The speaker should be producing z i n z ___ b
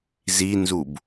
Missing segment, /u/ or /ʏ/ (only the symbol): u